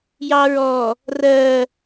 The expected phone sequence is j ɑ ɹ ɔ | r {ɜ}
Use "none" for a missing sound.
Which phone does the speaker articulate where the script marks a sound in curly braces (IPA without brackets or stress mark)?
ɜ